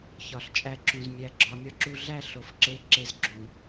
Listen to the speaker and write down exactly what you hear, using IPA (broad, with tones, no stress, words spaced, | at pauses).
çɒ˨ɬt͡ʃʼæ˧ǁũ˨z mʲæ˨ɡ͡ǁɒ˨ mʲɒ˦ǁu˧ɮæ˦ ɬo˨fǁe˦˨ǁe˧z ɡ͡ǁũ˨